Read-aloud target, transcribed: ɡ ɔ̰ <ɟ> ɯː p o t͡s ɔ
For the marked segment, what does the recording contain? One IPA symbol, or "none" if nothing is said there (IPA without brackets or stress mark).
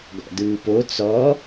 d